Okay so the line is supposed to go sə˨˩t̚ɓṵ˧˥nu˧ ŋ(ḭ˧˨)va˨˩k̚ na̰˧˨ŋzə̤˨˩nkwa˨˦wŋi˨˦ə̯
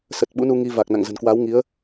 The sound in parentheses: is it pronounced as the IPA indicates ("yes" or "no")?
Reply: no